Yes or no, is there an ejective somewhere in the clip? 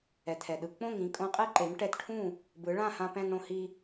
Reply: yes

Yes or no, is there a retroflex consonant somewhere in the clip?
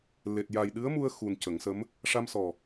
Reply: yes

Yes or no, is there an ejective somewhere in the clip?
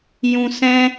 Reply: no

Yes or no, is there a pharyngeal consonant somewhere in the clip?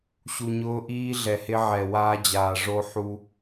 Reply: yes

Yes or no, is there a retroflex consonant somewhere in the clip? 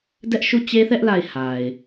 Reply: no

